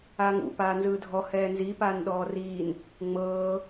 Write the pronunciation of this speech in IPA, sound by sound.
aː ŋ ṵ p aː n z ɯː dʱ ɔ h ɛː n z i p aː n ɗ ɔː r iː n | ŋ͡m ɤː

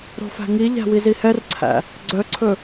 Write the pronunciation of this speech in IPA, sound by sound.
ɾ o̤ f æ̤ ŋ i ʎ æ̤ w i z i h ɛ r ǀʰ æ̰ | ɡ͡ǀ œ ǀʰ ɵ

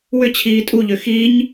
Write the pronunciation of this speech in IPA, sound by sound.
w ʏ t͡ɕʰ iː tʼ u ʎ ø x i ɲ

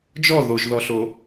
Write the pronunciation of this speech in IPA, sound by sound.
d͡ʒ ɔ ð o ʒ ð ɔ ɬ o

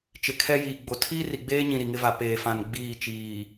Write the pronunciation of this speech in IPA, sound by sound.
t͡ʃ ɪ˨ kʰ ɛ˦ j iː˨ ɡ͡b o˨ tʰ iː˦ r i˨ ɡ͡b eː˦ ɲ ĩ˨ ɾ i˨ ŋ ɪ˦ v a˨ p eː˨ f ã˨ n ɡ͡b iː˦˨ t͡ʃ iː˨

